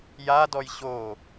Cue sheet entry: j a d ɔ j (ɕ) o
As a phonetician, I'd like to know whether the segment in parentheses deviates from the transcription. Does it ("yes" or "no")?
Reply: no